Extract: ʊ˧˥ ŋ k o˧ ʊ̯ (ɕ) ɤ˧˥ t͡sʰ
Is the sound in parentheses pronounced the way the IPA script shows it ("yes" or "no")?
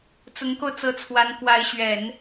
no